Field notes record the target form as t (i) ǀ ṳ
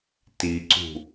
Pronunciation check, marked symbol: correct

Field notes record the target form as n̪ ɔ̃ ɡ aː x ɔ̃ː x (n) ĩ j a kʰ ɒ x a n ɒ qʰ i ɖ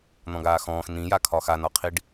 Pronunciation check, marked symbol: correct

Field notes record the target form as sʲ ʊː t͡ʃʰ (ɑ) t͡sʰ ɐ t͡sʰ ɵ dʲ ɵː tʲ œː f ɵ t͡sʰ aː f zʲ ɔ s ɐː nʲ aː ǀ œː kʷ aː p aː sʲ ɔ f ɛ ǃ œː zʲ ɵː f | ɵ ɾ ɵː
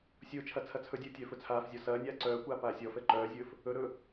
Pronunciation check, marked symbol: incorrect: ɐ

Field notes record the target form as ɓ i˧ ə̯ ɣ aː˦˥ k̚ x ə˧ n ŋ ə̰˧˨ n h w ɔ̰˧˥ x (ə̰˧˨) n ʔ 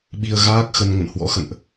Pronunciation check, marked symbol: correct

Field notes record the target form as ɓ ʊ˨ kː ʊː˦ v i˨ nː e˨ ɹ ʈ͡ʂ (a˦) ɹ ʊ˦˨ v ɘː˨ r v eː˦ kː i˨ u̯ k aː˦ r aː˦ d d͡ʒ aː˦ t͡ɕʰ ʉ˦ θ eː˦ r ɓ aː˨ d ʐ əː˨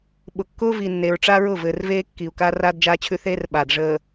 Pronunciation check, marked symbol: correct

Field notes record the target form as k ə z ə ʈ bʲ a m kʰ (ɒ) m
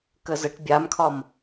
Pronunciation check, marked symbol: correct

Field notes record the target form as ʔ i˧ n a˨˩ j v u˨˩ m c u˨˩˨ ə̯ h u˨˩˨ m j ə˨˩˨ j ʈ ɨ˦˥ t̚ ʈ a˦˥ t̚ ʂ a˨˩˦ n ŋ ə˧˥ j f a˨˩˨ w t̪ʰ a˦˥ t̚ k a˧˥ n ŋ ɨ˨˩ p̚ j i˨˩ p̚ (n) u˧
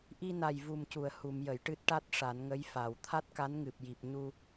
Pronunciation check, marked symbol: incorrect: ɲ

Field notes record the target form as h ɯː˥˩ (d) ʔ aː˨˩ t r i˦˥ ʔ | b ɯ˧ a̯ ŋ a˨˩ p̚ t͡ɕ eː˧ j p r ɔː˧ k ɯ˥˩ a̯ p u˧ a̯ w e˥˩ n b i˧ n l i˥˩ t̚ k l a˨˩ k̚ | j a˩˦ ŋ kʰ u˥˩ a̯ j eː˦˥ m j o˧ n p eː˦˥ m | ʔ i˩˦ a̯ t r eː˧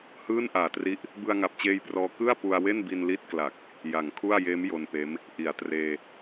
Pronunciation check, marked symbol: incorrect: n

